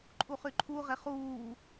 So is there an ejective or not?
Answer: yes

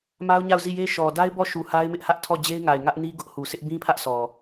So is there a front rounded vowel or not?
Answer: no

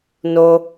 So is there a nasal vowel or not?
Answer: no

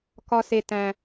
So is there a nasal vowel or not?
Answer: yes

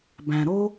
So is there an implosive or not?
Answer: no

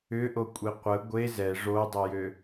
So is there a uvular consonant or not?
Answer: yes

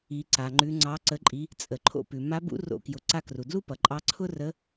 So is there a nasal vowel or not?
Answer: no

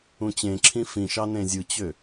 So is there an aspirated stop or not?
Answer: yes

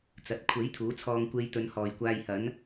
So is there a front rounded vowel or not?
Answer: no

